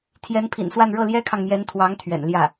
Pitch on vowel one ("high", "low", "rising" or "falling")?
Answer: rising